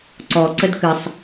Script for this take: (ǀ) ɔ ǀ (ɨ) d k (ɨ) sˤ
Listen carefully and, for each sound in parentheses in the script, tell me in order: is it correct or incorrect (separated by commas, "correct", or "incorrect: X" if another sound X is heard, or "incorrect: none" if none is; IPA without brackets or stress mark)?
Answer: correct, incorrect: ə, correct